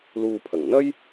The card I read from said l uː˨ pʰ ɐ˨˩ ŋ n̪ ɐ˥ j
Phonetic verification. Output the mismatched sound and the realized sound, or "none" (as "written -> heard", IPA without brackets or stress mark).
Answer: none